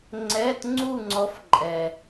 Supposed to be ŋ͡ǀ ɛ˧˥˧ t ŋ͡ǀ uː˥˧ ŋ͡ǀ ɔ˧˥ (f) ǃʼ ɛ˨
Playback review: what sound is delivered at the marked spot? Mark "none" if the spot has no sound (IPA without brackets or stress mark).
f